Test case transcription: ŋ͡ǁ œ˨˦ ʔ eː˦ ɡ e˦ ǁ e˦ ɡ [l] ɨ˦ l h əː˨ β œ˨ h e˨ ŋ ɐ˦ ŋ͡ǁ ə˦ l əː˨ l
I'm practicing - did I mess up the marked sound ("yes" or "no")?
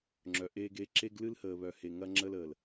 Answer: no